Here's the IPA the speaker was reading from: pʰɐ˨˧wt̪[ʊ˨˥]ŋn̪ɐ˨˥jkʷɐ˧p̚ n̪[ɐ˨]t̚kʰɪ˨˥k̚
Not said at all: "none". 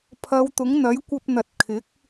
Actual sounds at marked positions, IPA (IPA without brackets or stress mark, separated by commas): ʊ˨˥, ɐ˨